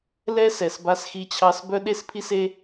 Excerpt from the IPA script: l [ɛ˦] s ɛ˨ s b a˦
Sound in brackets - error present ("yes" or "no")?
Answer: no